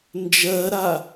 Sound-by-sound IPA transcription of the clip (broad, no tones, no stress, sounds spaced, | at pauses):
n d͡ʒ ɜ ɾ a